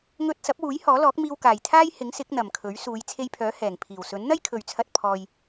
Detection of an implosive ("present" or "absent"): absent